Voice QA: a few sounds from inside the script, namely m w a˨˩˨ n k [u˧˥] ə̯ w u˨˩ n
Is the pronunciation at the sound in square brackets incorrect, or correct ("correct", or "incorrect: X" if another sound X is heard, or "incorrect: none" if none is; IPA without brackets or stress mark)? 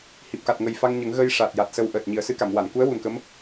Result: correct